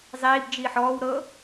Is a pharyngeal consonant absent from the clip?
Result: no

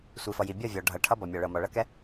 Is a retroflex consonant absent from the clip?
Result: no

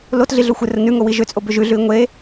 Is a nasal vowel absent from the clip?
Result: yes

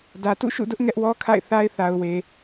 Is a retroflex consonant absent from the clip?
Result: yes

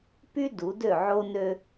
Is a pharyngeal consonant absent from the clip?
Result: no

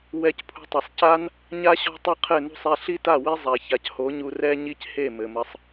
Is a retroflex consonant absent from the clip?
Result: yes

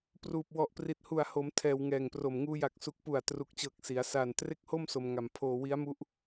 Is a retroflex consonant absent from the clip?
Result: yes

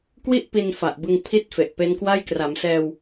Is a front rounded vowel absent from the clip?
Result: yes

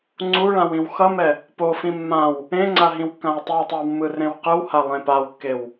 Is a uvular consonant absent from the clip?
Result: no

